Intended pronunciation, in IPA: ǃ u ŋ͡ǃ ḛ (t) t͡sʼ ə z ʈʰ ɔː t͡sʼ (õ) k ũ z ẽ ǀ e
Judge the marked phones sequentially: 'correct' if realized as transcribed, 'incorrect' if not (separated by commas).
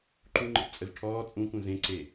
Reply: incorrect, incorrect